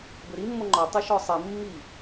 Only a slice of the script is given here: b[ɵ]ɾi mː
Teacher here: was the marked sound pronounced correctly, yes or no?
yes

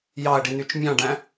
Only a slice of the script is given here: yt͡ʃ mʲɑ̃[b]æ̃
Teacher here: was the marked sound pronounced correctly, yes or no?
no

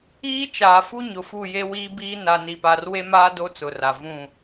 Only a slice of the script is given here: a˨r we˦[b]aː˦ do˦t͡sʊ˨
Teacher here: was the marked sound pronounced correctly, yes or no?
no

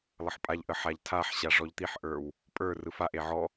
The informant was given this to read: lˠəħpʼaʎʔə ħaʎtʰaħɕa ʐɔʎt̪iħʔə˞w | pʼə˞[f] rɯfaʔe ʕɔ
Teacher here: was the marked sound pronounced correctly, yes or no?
no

